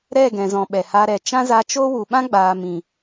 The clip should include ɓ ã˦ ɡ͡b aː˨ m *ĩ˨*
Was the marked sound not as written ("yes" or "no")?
no